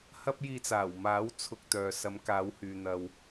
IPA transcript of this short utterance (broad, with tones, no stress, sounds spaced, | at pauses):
h ɐ˥ p̚ j iː˧ t͡s aː˨˩ w m aː˨˥ w t͡sʰ ʊ˨ k̚ t̪ œː˨ s ɐ˨˧ m k aː˨˧ w h yː˨ n̪ ɐ˨ w